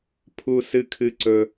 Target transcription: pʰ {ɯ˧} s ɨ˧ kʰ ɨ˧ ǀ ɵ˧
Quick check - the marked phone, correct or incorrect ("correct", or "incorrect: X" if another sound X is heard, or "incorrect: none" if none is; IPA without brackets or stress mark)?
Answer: incorrect: u˧